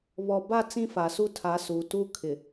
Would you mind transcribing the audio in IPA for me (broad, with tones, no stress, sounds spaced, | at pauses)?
β ɔ˨ b a˦˨ t͡s ĩ˦ f a˨ s u˦ tʰ a˨˦ s u˨ t u˦ kʰ ɪ˨